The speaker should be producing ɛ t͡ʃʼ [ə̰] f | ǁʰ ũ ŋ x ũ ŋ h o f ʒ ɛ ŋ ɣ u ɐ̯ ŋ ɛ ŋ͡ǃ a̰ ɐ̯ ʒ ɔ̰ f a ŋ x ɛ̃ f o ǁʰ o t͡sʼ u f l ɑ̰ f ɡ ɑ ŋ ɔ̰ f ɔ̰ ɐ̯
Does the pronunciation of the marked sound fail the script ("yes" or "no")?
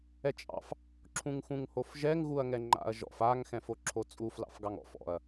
yes